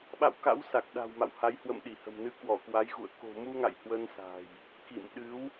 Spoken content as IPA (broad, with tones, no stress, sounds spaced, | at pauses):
ɓ a̰˧˨ w k a̰˧˥ w s a˨˩ k̚ ɗ a̤˨˩ w m a̰˧˨ w h a˨˦ j h w ə̰˧˨ m ɗ i˧˩ h ə̤˨˩ m n ɨ˨˦ k w ɔ˧˩ k w a˨˦ j ɣ ṵ˧˨ ə̯ k o̤˨˩ m u˧ ŋ a̰˧˨ j h w ə˧ n s a̤˨˩ j | k ḭ˧˨ m ɗ ɨ˨˦ w